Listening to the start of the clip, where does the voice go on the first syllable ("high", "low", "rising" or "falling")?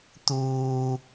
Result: low